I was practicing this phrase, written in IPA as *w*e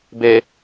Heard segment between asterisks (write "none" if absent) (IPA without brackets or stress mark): b